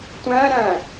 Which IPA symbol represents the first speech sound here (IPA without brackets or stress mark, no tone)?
tʷ